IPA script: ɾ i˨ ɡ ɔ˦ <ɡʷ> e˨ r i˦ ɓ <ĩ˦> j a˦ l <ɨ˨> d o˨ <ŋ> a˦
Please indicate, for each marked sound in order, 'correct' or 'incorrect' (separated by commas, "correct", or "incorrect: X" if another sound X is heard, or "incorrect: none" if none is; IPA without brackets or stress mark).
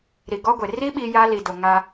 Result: correct, incorrect: i˦, incorrect: i˨, correct